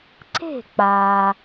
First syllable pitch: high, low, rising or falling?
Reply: falling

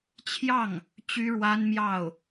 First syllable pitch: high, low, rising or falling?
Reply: falling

